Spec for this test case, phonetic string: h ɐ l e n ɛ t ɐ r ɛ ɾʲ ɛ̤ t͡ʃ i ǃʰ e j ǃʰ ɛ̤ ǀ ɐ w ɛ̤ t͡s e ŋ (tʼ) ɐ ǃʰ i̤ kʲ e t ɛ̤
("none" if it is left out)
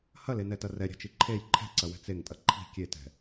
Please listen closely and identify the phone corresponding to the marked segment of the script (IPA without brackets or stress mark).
tʼ